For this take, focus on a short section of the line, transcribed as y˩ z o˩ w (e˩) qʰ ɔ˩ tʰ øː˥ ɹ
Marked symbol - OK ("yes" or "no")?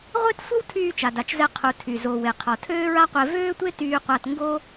yes